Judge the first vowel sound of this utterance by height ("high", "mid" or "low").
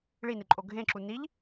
high